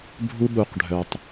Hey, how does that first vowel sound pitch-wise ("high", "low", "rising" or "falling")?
high